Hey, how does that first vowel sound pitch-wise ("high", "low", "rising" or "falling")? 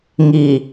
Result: low